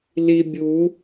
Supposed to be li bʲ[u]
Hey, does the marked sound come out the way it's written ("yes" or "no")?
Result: yes